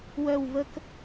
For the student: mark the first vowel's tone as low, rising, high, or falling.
falling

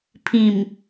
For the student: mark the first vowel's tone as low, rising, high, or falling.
low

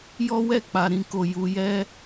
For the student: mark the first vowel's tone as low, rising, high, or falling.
high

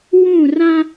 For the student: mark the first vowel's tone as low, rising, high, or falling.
falling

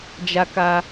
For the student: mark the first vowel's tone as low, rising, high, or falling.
high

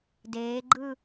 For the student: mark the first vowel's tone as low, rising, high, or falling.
rising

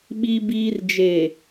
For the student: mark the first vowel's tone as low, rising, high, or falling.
high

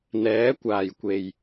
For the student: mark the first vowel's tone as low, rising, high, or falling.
rising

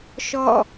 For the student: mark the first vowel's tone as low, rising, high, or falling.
falling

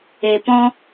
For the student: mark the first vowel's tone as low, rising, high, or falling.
low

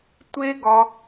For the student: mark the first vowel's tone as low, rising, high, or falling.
high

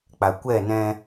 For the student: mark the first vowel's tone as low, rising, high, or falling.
low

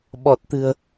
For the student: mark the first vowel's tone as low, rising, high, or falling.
low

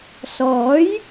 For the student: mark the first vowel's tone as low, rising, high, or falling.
rising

